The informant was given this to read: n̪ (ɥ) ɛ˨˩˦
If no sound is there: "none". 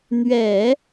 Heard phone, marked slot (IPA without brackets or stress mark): ɥ